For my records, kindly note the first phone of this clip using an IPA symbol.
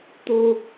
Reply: t̪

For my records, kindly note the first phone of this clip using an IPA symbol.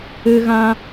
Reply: ɨ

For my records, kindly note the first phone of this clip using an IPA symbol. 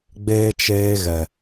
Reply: ɡ͡b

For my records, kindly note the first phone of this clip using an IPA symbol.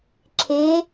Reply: ǁʰ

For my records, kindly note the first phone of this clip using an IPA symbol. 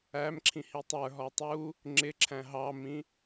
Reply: æ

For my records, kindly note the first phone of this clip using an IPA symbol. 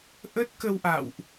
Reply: ʔ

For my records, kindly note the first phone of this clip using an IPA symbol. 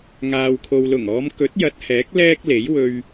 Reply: ŋ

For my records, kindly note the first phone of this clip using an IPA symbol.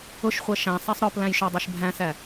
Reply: ʊ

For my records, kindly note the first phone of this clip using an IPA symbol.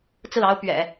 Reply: t͡s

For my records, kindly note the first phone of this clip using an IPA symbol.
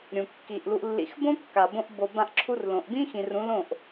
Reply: ɾʲ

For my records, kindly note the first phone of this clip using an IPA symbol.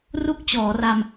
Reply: r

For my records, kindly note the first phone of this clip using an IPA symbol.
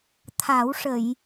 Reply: t̪ʰ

